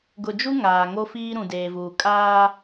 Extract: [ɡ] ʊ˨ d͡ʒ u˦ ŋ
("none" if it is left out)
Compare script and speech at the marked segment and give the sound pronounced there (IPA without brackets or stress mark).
ɡ